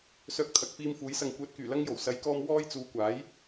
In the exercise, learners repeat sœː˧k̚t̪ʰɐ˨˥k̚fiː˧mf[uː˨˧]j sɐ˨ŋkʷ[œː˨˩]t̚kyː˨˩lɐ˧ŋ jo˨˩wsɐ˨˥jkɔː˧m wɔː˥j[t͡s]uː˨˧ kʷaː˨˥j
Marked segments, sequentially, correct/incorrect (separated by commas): incorrect, incorrect, correct